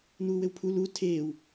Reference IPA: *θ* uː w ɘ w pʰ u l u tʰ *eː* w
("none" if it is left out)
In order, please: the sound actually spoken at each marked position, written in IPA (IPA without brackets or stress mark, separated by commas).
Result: n̪, eː